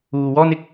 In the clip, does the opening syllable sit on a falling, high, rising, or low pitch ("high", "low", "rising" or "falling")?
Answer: low